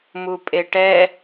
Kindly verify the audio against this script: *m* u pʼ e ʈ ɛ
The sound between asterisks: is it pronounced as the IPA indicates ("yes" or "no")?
yes